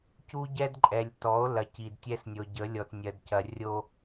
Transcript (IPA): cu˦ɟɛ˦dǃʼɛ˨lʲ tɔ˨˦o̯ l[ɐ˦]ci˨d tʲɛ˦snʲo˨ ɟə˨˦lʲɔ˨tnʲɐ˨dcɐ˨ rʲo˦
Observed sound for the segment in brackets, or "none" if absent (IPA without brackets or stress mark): ɐ˨˦